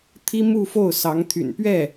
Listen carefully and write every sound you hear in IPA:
t̪ʰi˥ mu˥˧ fo˥˩ʊ̯sɑ˧˥ŋt̪ʰy̰˨˩n pɥɛ˥˩

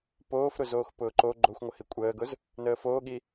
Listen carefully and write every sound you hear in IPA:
poːfɾʊ zoːxpʊːǃo ɡ͡ǃoxʷŋʷəhi kʷʼəːɡʊz | nəːfoːɠi

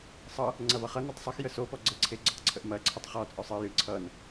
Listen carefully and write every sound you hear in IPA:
sˤʌ | ŋ͡ǀɐvʌχʌ nɐtˤsˤɨxjə sopɔ ɡ͡ǀəǀʰe ɡ͡ǀʌtˤǀʰəʔmɐ ǀʰətˤχɔ t͡sʼɔsˤɨ jɨ ǀʰʌn

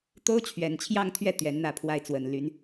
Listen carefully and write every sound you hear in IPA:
t̪o˥ʊ̯t͡ɕʰɥɛ˨˩nt͡ɕʰjɑ˥˧ŋt̪ʰɥɛ˥˩ t̪ɥɛ˧˥nn̪ä˥˧ pʰwa˥˩ɪ̯t͡swə˨˩nly˧˥n

